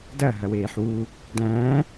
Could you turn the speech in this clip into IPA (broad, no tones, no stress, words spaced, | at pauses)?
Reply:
dɐ ɦɐweːħwu | dæ̃